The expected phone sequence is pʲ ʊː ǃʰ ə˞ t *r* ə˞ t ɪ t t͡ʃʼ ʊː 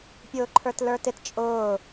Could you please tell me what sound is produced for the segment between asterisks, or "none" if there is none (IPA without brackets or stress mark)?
l